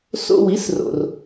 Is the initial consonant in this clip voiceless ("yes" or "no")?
yes